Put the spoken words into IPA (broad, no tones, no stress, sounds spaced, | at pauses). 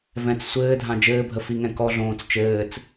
v ɛ̃ t͡s sʷ ɘː dʱ ã d͡ʒ ɘː bʱ ə f i ŋ ɛ̃ k ɔ ɮ õː t͡s t͡ʃ ɘː t͡s